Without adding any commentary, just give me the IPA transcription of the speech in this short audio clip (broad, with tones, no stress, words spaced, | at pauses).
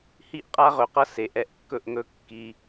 hi˦ʔqʼa˦ʁɵ˨qʌ˦ se˨ʔɛ˦˨ʔkːɵ˦ʔ ŋɵ˦kːi˦